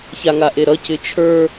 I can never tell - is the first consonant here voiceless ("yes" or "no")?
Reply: yes